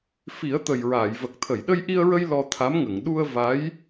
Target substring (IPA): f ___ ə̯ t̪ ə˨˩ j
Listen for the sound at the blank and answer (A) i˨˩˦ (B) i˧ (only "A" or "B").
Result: A